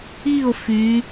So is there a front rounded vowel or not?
yes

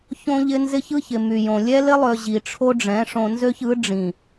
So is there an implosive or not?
no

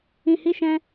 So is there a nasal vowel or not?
yes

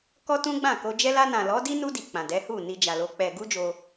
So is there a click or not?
no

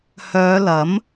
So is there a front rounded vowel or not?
yes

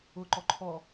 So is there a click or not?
yes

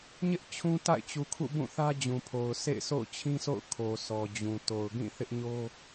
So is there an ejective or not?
no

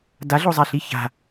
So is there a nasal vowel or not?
no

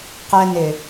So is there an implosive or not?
no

